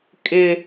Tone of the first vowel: high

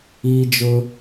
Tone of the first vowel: high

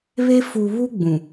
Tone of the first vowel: high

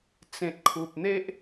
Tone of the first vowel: low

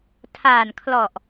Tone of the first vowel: low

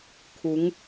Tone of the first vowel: rising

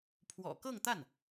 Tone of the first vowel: low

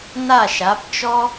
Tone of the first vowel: falling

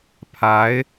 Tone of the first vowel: rising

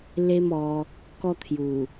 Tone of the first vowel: high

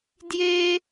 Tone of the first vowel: high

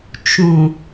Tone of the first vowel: low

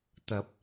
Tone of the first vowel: rising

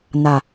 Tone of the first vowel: low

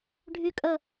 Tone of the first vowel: low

